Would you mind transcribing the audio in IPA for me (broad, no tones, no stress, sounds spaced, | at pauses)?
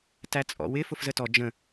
t æ t͡sʼ ɔ̰ w ɪ f ʊ f z ə t ɔ d͡ʒ ə̃